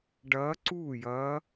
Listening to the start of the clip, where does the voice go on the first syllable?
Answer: rising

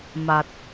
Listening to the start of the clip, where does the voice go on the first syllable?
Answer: low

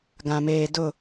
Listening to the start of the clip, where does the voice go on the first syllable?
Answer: low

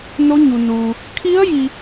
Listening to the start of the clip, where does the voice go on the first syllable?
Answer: rising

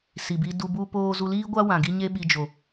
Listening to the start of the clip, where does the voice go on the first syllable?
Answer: low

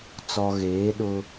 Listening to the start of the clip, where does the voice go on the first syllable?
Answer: low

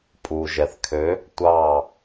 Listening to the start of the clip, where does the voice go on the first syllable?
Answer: low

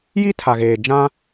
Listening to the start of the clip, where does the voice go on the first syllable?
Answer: high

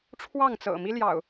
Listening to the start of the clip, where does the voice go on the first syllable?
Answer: falling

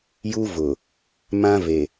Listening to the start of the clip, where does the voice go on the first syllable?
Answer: high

